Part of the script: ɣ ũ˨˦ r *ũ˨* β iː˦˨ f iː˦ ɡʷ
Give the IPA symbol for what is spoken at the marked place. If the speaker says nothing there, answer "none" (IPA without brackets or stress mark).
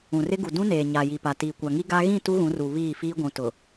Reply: u˨